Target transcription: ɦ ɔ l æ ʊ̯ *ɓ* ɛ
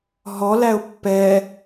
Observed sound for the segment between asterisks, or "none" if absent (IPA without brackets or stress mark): pː